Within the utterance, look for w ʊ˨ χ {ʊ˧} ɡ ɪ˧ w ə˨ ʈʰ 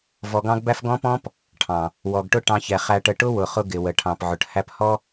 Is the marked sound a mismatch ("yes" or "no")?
no